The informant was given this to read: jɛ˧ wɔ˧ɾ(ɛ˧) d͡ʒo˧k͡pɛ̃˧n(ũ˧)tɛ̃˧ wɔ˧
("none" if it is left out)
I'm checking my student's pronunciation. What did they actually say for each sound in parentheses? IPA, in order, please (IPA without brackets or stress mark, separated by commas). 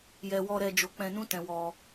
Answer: ɛ˧, ũ˦